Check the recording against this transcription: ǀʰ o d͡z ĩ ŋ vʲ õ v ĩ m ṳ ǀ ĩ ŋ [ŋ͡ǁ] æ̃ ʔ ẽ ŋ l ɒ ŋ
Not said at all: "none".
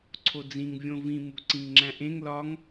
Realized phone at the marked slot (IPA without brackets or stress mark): ŋ͡ǁ